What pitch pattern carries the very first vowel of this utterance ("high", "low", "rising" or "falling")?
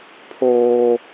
high